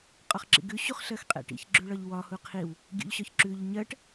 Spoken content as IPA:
qʼ ɒ χ ǁ ḭ ɡ ʉ ɕ u χ ɬ ɜ x qʼ ɛ̰ ʈ ḭ ç ɡ͡ǁ ʉ ɭ ɒ ʎ w ɒ h u qʰ i w | ɡʲ ṵ ʎ ɕ ɒ ç ǁ ʉ ʎ ɲ ɜ ʈ

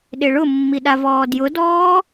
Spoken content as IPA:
ɗ ɪ ɭ ʊ mː i ɗ a v ɔː d j ʊ d ɔː

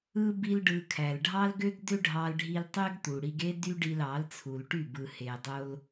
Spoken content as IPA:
ɯ˦ b i˦ l ɖ ɯ˧ kʰ æ˨ l ɖʱ ɑ˦ l ɡ ø˦ ɡ d ø˦ ɖʱ ɑ˧ l ɖʱ i˧ l tˤ ø˦ ɡ t̪ u˨ ɽ i˧ ɡ e˦ d y˦ ɖ i˧ l ɑ˨˦ l t͡sʰ u˨ l ʈ y˦˨ b ɯ˨ h e˨ dˤ o˧ l

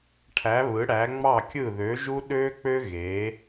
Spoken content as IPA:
ʈʰ æ˨˦ β ɯ˨˦ ɽ æ˨˦ ŋ͡m ɑ˦˨ kʲ ɯ˦˨ ð ø˨˦ ʒ u˥ ɗ ø˥ k͡p ø˥ ɣ e˨˦

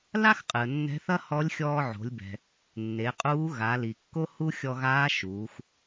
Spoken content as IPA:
l a˥ x qʼ ɨ˩ ə̯ nː ɛ̤˧˥ θ ɐ˥ h ɔ˧˥ lʲ xʲ ɔː˧ ʕ o̤˩˧ lʲ b ɛ̤˩ | nː e˩˧ qʼ uː˧˥ ɣ a˩˧ l i˩ kː o˥ h u˥ xʲ ɔ˧ ɣ aː˧˥ ʃ uː˩˧ x

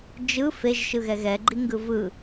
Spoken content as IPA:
d͡ʒ ɯ f e ʒ ʃ ɯ ɣ ɛ ɣ ɛ ɡ͡ǃ i ŋ ɡ ɯ v ɯ

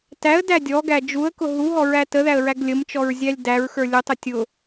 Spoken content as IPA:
t æ ə̯ d æ dʲ ɔ ɡ æ d͡ʒ u ə̯ k ʊ ɦ u ɦ ɔ ɹ æ t ə ð æ ə̯ ɹ æ ɡ lʲ ə m t͡ʃ ɔ ɹ zʲ æ lʲ d æ ɹ x ə˞ lʲ ʊ tˤ ʊ tʲ ʊ

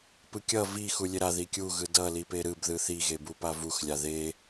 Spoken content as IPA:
p ɯ kʲ ʌ v i x u lʲ e ɾ a ð i kʲ u ɣ ɯ d ʌ l i p e ɾ ɯ b ð ɯ θ i ɣ e b u p a v u x lʲ a ð e

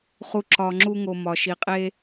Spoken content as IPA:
χ u˨ ǁ ɒ˨ ŋ͡ǁ u˦ ŋ o˨ m ɒ˩ ʃ i˩ qʼ e˦

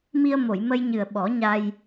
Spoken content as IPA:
m i˧ ə̯ m o˨˩˨ j m ə˧ j ɲ ɨ˨˩ ə̯ ɓ ɔ˨˩˦ ɲ a˧ j

